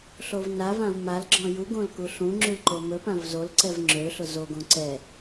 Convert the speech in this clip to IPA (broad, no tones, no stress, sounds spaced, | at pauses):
ɬ o v n a v ã v m a l ɡ͡ǁ ɔ̃ j u ɡ õ l k u ɬ ũ ŋ͡ǁ y l ǃ o m ɵ p ã v z o l ǀ ɛ v ŋ͡ǁ ø ɬ ʊ z o ɡ õ ǀ ɛ